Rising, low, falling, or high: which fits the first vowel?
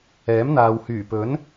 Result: rising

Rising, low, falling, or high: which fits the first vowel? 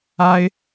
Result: high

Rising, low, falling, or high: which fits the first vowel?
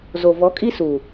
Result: low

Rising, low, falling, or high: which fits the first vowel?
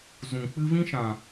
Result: low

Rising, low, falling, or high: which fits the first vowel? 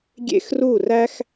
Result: high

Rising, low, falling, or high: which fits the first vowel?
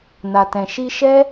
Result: low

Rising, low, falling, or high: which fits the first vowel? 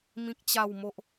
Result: high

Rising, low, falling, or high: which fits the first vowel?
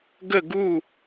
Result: falling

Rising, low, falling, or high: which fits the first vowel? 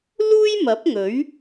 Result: high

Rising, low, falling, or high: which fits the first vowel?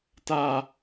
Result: low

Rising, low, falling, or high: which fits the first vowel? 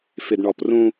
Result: low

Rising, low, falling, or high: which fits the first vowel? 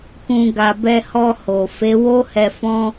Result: low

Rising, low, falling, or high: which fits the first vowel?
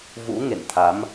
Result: rising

